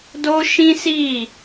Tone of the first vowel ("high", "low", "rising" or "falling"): high